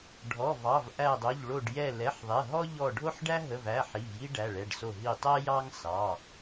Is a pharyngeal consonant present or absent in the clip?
present